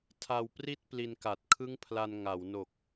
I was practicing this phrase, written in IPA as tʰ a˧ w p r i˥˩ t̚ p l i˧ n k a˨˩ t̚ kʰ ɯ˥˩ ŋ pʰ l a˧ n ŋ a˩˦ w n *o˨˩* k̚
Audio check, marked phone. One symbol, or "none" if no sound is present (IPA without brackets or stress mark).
o˨˩